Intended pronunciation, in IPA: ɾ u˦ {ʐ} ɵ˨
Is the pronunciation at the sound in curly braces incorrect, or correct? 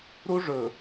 correct